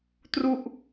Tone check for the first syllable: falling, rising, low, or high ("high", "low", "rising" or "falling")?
falling